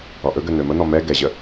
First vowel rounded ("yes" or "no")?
yes